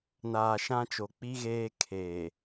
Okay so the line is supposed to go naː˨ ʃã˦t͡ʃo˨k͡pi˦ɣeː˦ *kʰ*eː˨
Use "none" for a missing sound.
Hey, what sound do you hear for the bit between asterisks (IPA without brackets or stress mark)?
kʰ